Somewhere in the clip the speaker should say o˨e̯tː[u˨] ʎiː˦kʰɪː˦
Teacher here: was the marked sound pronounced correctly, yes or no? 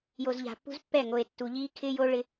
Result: yes